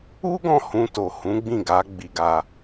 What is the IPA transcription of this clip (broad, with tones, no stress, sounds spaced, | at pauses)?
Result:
u˦ ɡ ɔ̃˦˨ h ũ˧ t o˨ h ũ˨˦ ɡ͡b ĩ˦˨ ɡ a˨˦ ɡ͡b i˧ ɡ a˧